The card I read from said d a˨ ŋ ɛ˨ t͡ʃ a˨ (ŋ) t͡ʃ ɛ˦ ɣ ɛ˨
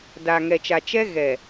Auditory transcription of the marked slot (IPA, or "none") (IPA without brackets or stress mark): none